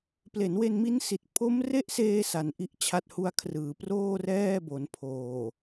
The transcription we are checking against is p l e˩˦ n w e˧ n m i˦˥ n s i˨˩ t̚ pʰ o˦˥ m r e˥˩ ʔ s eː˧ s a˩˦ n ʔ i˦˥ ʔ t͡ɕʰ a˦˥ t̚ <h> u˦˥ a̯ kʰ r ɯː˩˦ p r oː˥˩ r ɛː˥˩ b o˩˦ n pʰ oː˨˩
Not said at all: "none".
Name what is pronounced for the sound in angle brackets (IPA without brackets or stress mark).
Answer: h